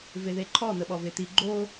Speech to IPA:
v e ð e ǃʰ ɔ n̪ ə ɓ ɔ v e t̪ i ɡ͡ǃ o

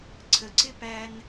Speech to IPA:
ǀʰ ə˩ ǀ ɪ˥ p æ˧ n

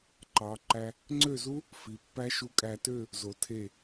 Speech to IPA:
ǃ ɑ˩˧ ǃ æ˧ | ŋ͡ǀ ø˥˧ z u˥ | f i˩˧ pː æ˥ ʃ u˧ kʼ æ˧ t ø˥˧ | z o˩˧ tʰ e˧˩

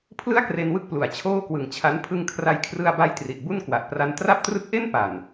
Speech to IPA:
pʰ l ɯ˥˩ a̯ k r e˧ n w ɯ˦˥ k̚ p l u˩˦ a̯ t͡ɕʰ oː˥˩ k w ɯ˨˩ ŋ t͡ɕʰ a˦˥ n pʰ ɯ˧ ŋ kʰ r a˧ j kʰ r ɯ˧ a̯ b a˦˥ j t r i˨˩ ʔ b u˥˩ n k w a˨˩ ʔ p r a˧ n t r a˥˩ p̚ t r ɯ˥˩ k̚ ʔ e˥˩ n p a˨˩ n

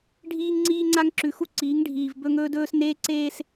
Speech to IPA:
ɖʱ iː˦ ŋ ŋ͡ǀ iː˦ ŋ͡ǀ a˦ ŋ ǁ ʉ˨ x u˦ ǀ iː˨˦ ŋ ɖʱ iː˨ v b ɵ˦ ŋ ɵː˦ d ɵː˦ s n eː˦ ǀ eː˦ s

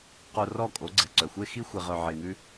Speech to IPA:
q o˧ r ɔ˦˨ kʼ o˨˦ ɡ͡ǀ ɛ˨ ǀ œ˨ xʷ e˦ x i˦ xʷ e˧ ʁ œ˧ ʕ e˧ ŋ ʉ˦

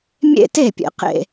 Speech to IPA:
mʲ ḛ˥˧ t e˥˩ pʲ ḛ˨ q ḛ˥˩

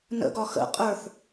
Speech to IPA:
n ə̰ ɡ ɒ x ə̰ qʼ ə˞ θ

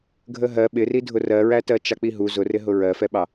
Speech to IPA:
ɡʱ ə ɦ ɜ ɓ ɪ r i dʱ ʊ r ɜ ɹ æ t ɜ t͡ʃ ɑ k͡p i ɦ u z ʊ r ɪ ɦ ʊ ɹ ɜ f ɛ ɓ ɑ

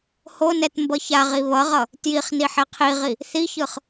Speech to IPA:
h o n ɛ t m b ʌ ç a ʁ i β ʌ ʁ ʌ | t j i χ n i ħ ɛ qʰ i ʁ i | θ i ç ɯ χ

